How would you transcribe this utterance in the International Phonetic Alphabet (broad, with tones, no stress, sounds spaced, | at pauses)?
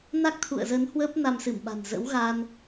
n a˦˥ k̚ t̪ʰ ṵ˧˨ ə̯ z ə˨˦ n h w ə˦˥ p̚ n a˧ m s ɨ˧˩ m ɓ a̤˨˩ n z ə̰˧˥ w ɣ a˧ n